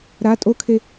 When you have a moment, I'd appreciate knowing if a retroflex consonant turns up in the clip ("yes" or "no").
no